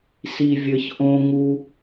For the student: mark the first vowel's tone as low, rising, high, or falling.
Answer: low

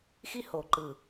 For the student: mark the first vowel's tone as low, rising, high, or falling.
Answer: high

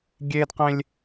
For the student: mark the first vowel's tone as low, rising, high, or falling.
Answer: high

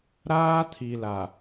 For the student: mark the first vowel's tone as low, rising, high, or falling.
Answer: high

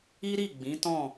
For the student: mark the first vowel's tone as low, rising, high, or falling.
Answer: high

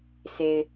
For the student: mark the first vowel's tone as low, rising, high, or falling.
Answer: low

